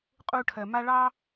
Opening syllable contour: high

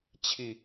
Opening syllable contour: falling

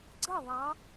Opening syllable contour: falling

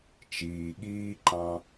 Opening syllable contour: low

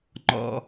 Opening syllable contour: high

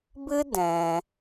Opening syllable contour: high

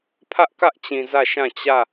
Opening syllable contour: high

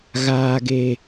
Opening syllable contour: low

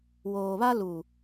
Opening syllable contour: low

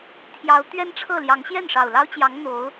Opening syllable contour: rising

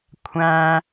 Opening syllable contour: high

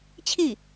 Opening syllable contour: falling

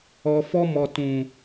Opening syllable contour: low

